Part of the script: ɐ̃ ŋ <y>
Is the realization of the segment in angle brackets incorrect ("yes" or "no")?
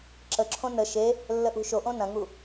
yes